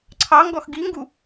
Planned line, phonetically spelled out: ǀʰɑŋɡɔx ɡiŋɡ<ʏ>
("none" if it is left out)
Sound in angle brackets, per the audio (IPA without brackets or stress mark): u